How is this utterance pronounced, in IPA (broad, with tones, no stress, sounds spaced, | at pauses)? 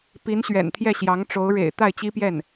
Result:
p i˧˥ n ɕ ɥ ɛ̰˨˩ n t̪ʰ j ɛ˥˩ ɕ j ɑ˧˥ ŋ ʈ͡ʂ o˧˥ ʊ̯ ɻ ḛ˨˩ ɪ̯ t̪ a˥˩ ɪ̯ t͡ɕ i˥ p j ɛ˥˩ n